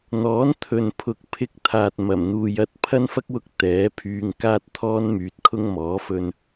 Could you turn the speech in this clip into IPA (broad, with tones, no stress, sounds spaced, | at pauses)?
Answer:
n̪ ɔː˨˥ n t̪ʰ ɵ˨ n pʰ ʊ˨ k̚ pʰ ɪ˧ k̚ t̪ʰ aː˨ t̚ m ɐ˨˩ m n̪ uː˨ j ɐ˥ t̚ pʰ ɐ˥ n f ɐ˥ k̚ w ʊ˧ k̚ t̪ ɛː˨˥ pʰ yː˧ ŋ k aː˥ t̚ t̪ʰ ɔː˥ n m yː˨ t̚ kʰ ʊ˥ ŋ m ɔː˨˥ f ɵ˧ n